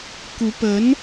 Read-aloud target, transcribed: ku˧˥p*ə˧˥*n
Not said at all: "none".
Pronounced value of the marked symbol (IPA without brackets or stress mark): ə˧˥